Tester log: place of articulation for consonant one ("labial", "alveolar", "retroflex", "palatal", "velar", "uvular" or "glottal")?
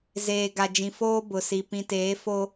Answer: alveolar